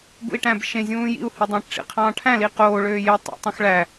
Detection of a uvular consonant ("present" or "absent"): present